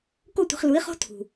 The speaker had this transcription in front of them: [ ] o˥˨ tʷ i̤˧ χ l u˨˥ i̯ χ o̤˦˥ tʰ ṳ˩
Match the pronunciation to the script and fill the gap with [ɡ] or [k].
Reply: k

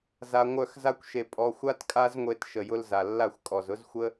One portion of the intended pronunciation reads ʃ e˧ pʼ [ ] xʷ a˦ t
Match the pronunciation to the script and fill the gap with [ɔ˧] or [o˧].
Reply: ɔ˧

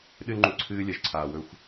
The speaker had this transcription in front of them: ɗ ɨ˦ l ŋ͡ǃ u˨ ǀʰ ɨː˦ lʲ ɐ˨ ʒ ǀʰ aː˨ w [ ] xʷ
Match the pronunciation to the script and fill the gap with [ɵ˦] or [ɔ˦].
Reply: ɵ˦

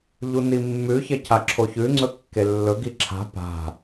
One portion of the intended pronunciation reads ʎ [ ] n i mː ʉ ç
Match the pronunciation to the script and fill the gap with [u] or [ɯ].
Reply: u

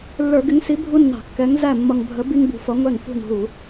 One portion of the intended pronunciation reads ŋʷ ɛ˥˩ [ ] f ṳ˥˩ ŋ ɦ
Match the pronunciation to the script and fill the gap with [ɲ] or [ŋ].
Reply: ŋ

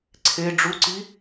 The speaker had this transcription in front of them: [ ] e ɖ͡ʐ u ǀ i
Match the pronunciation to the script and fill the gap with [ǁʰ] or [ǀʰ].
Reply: ǀʰ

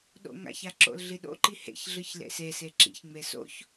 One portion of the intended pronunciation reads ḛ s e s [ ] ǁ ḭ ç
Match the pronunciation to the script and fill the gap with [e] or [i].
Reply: e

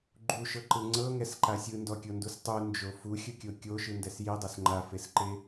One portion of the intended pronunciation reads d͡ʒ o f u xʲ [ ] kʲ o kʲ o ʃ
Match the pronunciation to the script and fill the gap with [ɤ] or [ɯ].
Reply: ɯ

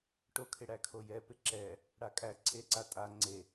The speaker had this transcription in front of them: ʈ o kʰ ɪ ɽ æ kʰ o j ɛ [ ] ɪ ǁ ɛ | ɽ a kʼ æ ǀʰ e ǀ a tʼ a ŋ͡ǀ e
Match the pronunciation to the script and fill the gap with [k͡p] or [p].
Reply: p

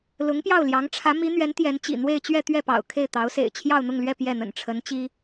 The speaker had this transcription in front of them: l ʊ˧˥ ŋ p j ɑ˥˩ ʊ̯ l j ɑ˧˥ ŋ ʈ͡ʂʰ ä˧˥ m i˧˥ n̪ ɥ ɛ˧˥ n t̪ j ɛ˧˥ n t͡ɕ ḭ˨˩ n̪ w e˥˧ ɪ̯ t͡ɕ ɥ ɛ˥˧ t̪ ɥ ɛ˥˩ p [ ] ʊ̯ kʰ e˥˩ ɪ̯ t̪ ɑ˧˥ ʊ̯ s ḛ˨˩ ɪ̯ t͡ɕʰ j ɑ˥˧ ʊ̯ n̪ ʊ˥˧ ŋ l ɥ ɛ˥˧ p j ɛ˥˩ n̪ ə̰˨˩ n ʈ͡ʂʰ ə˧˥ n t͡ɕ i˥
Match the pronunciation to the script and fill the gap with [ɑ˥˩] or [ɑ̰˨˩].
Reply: ɑ̰˨˩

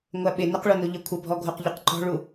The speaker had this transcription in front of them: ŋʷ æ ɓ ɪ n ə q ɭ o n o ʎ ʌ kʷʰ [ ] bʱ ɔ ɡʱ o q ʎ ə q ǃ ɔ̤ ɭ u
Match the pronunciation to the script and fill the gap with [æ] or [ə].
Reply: ə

